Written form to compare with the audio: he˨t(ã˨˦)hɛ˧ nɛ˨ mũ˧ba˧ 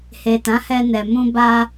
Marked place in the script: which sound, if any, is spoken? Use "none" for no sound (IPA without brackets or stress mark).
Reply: ã˨˦